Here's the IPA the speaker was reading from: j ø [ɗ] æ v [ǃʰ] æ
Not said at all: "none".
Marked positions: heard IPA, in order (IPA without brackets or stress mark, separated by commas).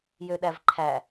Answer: ɗ, ǃʰ